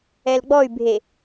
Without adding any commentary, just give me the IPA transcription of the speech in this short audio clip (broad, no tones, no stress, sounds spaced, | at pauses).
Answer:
ɛ l ɡ͡b ɔ y̯ bʱ e